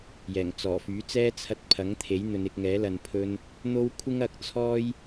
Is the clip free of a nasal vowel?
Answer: yes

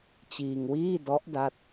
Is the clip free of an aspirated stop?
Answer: yes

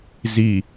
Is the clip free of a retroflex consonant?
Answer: yes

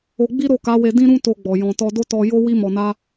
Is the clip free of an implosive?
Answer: yes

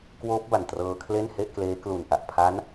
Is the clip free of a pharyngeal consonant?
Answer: yes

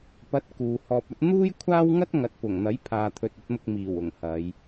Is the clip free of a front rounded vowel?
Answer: yes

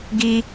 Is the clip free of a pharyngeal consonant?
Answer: yes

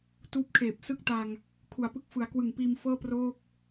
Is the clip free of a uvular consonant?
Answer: yes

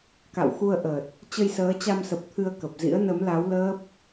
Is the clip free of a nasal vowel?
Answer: yes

